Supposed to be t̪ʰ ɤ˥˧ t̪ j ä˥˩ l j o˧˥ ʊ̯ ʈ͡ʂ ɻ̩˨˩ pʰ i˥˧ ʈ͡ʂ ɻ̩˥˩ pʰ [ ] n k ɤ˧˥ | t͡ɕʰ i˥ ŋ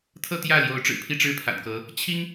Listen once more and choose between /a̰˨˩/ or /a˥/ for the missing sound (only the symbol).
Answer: a̰˨˩